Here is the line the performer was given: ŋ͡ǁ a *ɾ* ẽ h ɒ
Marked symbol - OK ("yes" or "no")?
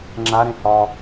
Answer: yes